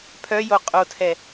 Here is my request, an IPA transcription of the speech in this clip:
pʰœjo qʼotʰɛ

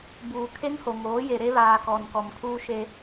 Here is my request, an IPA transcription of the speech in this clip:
buː˨kʰe˦ŋho˨ŋoː˨˦ je˨ɾe˦βaː˨kɔ˨n kɔ˨mkʰuː˦ʃe˦

